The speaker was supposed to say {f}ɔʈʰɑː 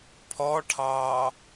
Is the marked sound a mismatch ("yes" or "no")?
yes